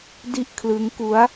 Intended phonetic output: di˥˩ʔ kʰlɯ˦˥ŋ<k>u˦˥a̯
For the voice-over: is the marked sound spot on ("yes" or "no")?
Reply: yes